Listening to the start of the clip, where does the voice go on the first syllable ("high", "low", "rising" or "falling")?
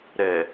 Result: low